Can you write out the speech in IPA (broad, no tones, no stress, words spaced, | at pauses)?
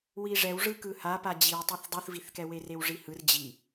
wiʐɛwʐɯkɯ hapa d͡ʑiwtˤeθ dˤuθviθkɛwe rewʐihɯr d͡ʑi